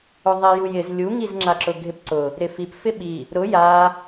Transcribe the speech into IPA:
ʊðˤijujɪz lʲuŋizŋ͡ǁa ǁʊɡʱɪpǀʊ | ɾɪfip fɪɓi | ɾʊ ja

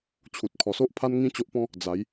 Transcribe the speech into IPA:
t͡ɕʰu˨t̚kʰɔ˨˩so˦ʔ pʰa˦n ŋĩ˦ t͡ɕo˦ʔpɔ̃˦ | d͡za˨˦j

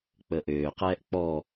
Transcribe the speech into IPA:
k͡pəʔøːqɛːʔ k͡pɔ

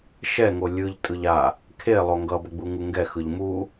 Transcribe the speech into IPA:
ʃɛŋo lʲɯʎ tʼɯʎa | kʰe lˠoŋɡʌbʌɡ͡bu ŋuŋɡɛxɯʎ mu

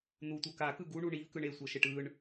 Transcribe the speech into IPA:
n̪utʷɤ kakɯ ɡuɳu ɳivkɯɳ esʷɤʃeʈ ɯɳ

